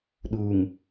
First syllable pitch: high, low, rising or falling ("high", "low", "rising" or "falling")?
low